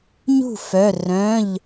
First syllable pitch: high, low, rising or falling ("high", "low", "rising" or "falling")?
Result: falling